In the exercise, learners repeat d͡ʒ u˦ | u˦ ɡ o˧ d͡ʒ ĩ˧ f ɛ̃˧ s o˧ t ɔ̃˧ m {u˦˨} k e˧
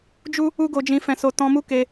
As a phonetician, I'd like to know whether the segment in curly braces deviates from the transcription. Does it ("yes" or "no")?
yes